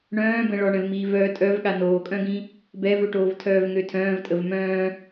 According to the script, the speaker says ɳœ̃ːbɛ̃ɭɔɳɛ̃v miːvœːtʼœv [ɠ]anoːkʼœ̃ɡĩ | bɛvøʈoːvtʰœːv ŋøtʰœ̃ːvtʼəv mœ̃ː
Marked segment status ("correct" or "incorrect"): correct